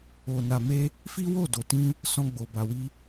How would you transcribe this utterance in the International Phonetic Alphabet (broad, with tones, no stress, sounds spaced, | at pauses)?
o˨ n a˨ m e˧ | f i˦ w o˦˨ d o˨ t ĩ˧ | s ɔ̃˧ ɡ͡b o˨ b a˨ w i˧